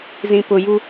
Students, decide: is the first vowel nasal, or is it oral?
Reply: nasal